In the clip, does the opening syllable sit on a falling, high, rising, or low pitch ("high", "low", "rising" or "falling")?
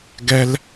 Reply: high